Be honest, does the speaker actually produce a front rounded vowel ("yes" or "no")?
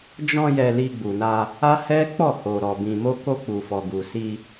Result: no